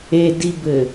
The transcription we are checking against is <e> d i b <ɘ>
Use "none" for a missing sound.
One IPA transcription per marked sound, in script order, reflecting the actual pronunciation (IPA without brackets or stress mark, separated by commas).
e, ɘ